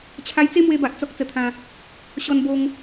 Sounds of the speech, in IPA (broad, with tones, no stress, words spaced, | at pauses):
t͡ɕʰa˧jt͡se˦mwe˧ba˨ʔ t͡sɔ˦k̚t͡sə˧t̪ʰã˧ | ɕɔ˧nbo˧ŋ